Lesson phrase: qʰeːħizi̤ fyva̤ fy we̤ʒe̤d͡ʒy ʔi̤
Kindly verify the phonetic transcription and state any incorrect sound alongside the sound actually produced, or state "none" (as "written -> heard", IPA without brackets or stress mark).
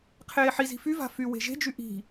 none